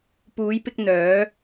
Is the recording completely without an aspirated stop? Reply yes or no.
yes